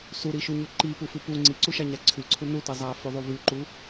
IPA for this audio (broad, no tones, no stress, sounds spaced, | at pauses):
s u ɾ i ʃ u ɲ ʉ ǃ i p u f ʉ p u ŋ͡ǀ i ǀ u ʃ a ɲ a ǀʰ ʉ ǀʰ u n u t i zˤ a f ʉ ðˤ u v ʉ ǃ u